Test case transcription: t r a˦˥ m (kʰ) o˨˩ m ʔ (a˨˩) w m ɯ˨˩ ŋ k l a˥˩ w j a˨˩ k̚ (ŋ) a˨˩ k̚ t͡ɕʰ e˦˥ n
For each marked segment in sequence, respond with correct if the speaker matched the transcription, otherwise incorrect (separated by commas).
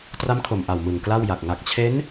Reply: correct, correct, correct